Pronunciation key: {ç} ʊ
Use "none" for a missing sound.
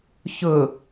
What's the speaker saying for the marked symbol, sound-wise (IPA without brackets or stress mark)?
ç